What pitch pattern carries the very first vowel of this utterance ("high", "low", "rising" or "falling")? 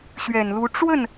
low